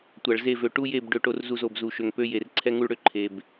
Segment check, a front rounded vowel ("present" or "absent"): present